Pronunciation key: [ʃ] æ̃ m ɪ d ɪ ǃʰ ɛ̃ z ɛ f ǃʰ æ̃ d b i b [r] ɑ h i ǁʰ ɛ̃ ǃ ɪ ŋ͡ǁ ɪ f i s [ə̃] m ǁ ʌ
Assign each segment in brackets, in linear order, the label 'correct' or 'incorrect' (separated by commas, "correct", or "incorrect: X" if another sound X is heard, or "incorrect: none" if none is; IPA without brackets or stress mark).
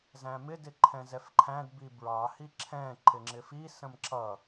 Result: incorrect: z, incorrect: ɹ, correct